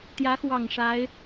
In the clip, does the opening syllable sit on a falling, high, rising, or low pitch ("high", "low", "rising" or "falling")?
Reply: rising